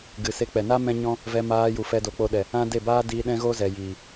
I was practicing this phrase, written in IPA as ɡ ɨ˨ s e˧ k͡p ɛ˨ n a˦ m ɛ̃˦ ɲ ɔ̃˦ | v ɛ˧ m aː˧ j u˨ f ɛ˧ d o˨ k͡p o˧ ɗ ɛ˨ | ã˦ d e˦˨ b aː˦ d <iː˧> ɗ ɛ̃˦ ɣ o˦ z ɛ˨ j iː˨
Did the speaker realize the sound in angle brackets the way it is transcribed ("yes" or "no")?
yes